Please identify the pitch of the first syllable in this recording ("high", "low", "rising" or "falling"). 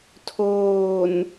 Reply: low